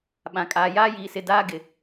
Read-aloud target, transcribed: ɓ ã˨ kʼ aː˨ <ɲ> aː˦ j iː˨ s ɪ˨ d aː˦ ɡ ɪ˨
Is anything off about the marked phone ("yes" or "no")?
yes